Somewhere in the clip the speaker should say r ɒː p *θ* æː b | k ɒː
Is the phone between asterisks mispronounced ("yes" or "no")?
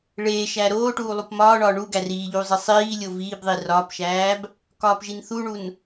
yes